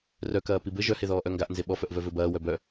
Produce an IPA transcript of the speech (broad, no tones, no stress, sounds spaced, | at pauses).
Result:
r œ k ɐː p i b ɘ ʒ œ h e ð ɔː ʔ œ ŋ ɡ a ʔ n z e ɓ ɔ f œ ʔ v œ v ɘ b ɐː w œ b œ